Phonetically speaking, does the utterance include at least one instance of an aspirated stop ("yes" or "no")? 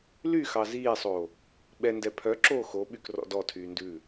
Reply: yes